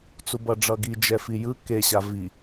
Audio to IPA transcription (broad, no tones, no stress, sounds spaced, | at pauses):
t͡s u b ʌ ɖ͡ʐ ʌ ɡ i d͡ʒ ɛ f i j ɯ k e ɕ a v i